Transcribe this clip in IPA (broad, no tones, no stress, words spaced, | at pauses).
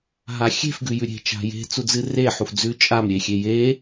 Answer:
ɦaxʲe̤f ɡʉjʉɾʲe̤ t͡ʃa̤je̤ t͡sud͡zɨre ħufd͡zʉ t͡ʃʼam ɾʲexʲeje